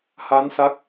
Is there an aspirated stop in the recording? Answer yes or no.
no